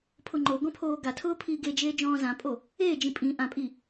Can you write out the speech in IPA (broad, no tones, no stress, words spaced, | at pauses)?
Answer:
pʰʊŋ͡ǃoɡɔ̃ pʰoːɡatʰʊː pʰiːɡed͡ʒeː d͡ʒɔ̃ːzãpʼo | eːd͡ʒĩ pʼĩ ʔãpʼi